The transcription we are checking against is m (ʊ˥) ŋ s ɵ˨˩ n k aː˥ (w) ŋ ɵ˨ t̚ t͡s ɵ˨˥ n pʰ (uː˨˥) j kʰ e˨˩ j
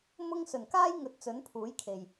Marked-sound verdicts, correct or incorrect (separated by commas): correct, incorrect, correct